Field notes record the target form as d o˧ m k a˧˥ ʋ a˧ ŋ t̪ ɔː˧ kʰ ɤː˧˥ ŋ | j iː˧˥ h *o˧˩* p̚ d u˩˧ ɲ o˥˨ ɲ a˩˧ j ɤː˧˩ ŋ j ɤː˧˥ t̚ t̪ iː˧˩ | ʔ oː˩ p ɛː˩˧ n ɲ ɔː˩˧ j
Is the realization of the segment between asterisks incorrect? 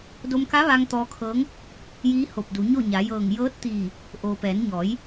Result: no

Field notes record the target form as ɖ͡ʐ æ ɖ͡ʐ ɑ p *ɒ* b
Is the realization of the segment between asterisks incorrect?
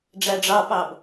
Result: yes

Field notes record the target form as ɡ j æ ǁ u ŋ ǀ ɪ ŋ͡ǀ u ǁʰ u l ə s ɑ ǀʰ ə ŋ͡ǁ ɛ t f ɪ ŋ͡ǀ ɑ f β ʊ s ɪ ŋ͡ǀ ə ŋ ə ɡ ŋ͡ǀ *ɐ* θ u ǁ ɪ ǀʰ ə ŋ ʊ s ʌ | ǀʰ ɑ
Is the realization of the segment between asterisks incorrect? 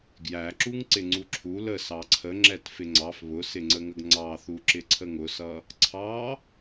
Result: yes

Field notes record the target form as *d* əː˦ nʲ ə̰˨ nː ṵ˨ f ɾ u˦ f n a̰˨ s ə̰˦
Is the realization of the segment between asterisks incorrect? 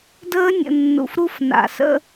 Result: no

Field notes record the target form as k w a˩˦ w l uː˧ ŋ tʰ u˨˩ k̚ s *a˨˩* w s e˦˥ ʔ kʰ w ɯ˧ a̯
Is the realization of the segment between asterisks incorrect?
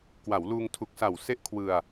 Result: no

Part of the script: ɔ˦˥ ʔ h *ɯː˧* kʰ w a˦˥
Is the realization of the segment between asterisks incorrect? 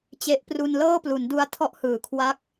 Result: yes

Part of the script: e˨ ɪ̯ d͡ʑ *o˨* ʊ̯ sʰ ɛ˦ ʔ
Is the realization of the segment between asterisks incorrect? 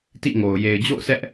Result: yes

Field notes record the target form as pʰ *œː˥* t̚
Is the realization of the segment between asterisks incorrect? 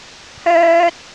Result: no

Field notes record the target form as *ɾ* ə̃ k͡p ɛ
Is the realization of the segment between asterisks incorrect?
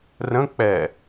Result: yes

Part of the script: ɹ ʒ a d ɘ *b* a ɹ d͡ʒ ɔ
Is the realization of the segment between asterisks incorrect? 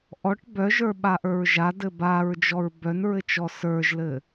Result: no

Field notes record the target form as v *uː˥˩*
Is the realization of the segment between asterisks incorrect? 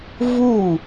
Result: no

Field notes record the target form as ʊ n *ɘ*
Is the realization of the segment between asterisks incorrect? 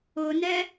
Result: yes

